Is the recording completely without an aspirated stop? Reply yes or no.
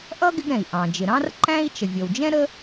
yes